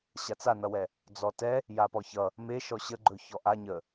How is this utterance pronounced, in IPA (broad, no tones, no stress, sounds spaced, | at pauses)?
ɕ a t͡s a n ʌ w ɛ | d͡z ɔ t ɛ | j a p ɔ ç ʌ | m e ʃ ɔ ɕ ə ɡ͡ǃ ɵ ç ɔ ʔ a ɲ ə